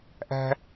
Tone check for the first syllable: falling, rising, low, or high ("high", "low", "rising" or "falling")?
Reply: high